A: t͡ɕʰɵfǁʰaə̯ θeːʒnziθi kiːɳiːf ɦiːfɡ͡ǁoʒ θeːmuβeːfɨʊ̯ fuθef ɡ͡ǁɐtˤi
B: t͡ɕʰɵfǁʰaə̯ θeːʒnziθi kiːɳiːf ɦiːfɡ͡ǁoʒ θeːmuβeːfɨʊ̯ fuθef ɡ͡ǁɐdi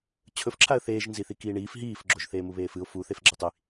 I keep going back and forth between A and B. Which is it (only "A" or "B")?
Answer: A